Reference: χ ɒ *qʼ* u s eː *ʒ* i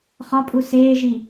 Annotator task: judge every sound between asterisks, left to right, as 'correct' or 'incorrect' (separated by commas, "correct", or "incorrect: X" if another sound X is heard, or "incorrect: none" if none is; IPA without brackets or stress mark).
incorrect: pʼ, correct